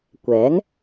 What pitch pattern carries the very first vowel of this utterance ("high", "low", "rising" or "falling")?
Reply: rising